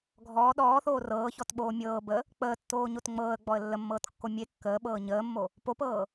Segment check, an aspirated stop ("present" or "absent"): absent